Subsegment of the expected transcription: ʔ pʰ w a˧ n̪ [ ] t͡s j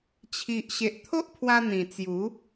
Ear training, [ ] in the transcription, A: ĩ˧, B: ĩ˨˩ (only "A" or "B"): B